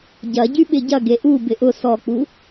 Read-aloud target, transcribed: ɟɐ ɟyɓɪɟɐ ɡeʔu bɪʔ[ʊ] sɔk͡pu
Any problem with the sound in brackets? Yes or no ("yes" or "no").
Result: no